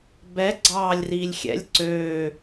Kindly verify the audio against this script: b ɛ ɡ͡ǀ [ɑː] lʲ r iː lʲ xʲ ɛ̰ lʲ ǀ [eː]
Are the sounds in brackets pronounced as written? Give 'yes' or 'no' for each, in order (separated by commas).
yes, no